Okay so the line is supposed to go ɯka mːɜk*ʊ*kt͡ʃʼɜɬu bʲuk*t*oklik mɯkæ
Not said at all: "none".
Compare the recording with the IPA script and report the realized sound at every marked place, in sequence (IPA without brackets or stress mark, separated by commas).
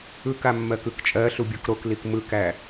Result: ɯ, ɾ